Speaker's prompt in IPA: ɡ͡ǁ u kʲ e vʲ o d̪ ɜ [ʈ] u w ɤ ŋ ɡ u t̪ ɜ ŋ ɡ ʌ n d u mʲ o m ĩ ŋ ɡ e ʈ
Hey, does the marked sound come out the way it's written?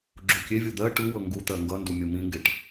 yes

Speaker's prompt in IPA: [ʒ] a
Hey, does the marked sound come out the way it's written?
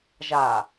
yes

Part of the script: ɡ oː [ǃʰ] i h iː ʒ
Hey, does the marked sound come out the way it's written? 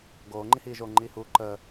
no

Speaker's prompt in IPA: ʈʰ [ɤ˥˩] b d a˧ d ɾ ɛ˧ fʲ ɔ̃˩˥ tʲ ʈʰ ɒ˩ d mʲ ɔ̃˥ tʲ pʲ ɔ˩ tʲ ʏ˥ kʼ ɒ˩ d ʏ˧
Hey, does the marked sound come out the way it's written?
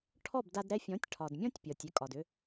no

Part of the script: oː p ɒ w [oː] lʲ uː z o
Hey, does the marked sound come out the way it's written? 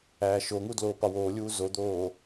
yes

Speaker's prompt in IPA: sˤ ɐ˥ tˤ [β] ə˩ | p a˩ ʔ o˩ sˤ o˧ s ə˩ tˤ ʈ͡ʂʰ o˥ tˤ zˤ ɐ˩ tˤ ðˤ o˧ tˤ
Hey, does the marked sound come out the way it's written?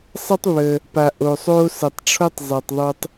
yes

